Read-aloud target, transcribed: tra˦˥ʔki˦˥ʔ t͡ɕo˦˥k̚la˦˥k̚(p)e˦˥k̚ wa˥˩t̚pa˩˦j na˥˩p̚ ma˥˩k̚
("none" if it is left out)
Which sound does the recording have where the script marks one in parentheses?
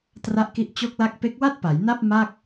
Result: p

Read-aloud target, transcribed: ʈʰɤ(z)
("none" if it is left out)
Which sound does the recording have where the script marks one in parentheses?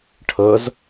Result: z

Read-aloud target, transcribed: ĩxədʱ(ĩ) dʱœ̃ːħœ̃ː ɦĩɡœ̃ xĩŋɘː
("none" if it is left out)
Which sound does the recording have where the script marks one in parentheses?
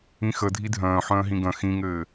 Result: i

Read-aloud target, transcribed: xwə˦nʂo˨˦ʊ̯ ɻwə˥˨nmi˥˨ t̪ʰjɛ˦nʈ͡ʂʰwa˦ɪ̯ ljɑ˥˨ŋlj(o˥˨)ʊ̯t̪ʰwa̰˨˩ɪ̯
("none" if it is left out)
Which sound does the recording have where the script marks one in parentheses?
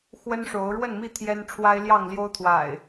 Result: o˦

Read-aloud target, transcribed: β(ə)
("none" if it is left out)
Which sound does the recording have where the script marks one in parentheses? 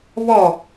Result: ɔ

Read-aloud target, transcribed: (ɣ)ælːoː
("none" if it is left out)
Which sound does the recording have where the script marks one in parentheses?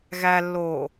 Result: ɣ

